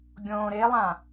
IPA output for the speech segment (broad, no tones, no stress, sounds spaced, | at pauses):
ɡʲ õː ɾ e lˠ ã